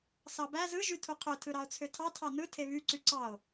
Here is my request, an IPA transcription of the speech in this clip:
s ɑ b æ z ɯ ʒ y tʰ u qʰ ø tʰ ɯ ɾ ɑ o̯ t͡sʰ ø tʰ ɑ tʰ ɑ n ɯ tʰ e β y ǀ y ǀ ɑ o̯

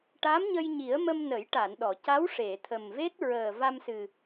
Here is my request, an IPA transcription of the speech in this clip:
ʈ a˧˥ m ɲ ə˧ j ɲ i˨˩˦ ə̯ m ə˧ m n ə˨˩˦ j ʈ a˨˩˨ n ɗ ɔ˨˩˨ c a˧˥ w ʂ e˨˩˨ t̪ʰ ə˨˩ m v e˦˥ t̚ ɹ əː˨˩ v a˧ m s ɨ˨˩

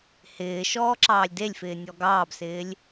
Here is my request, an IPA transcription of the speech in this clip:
h ɪː ʃ ɔː ǁ ɑː lʲ d e lʲ f ɪː nʲ ɔ ɡ ɑː b s ɪː lʲ

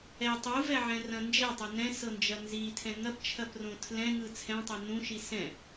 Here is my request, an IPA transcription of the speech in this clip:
ɛ tˤ u v ɛ ʕ ɛ̃ r ɐ̃ n d͡ʒ ɛ tˤ ɐ n ɛ̃ s ɤ n d͡ʒ ɐ n z i tʰ ɛ̃ ŋ ɐ p t͡ʃʰ ɐ p r õ tʰ l ɛ̃ ŋ ɯ t͡sʰ ɛ̃ tˤ ɛ n ũ ʃ i s ɛ̃

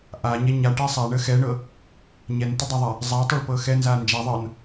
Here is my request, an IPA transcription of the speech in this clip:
ʔ a ɲ ɛ ɲ a ʈ ɛ sˤ a ɳ ə x ɛ ɳ ɤ | ɲ ɛ n t ə dˤ a ðˤ a | zˤ a tˤ ɤ ɭ p ɤ x ɛ n z a n d͡ʒ a ðˤ ɤ n

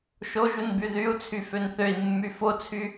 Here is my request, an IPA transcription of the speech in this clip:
ʃ o ʒ u n b y ð y u̯ t͡sʰ y f ø n θ ø i̯ mː y f o t͡sʰ y

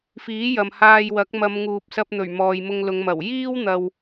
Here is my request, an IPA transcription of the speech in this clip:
f iː˨˥ j ɐ˨ m h aː˧ j w ɐ˨˥ k̚ m ɐ˨˧ m ŋ uː˨ p̚ s ɐ˧ p̚ n̪ ɵ˨˩ ɥ m ɔː˨ j m ʊ˧ ŋ l ʊ˨˧ ŋ m ɐ˨˩ w j iː˥ w n̪ ɐ˨ w

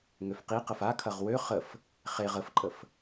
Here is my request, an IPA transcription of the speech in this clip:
ŋ ø f q i q ə f a kʰ ɐ ʁ w ø χ ə f | χ e ʁ ə f ǃʼ ə f

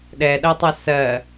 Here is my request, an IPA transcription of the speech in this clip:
ɗ ɛ ɗ ɐ tˤ ɐ s ɜ

